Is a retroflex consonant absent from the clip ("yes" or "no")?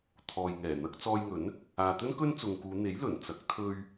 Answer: yes